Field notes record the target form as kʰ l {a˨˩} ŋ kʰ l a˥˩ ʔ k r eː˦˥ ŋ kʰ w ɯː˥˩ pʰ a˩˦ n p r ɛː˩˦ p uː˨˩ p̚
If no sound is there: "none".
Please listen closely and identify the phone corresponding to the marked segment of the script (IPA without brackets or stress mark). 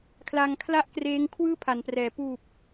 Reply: a˧